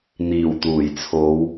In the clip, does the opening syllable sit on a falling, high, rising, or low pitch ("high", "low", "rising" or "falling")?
low